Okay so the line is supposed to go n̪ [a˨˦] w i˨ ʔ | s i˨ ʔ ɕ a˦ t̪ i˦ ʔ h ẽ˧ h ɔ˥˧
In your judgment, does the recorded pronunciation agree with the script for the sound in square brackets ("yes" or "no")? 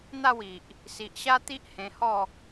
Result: no